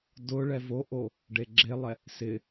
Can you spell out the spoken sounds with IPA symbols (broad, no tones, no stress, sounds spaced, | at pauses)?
d ʊ ɭ ɛ v o ʔ o | ɖ e ɡ͡ǁ e lˠ ɛ | s ɪ